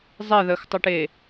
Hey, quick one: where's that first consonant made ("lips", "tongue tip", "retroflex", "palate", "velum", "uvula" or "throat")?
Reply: tongue tip